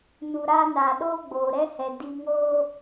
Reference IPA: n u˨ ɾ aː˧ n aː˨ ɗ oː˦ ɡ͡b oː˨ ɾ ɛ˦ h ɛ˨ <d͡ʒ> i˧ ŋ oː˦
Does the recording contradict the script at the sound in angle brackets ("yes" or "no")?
yes